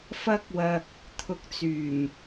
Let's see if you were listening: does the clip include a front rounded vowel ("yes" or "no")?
yes